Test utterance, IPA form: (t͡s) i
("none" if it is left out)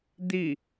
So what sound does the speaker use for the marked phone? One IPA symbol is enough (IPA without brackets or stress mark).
d̪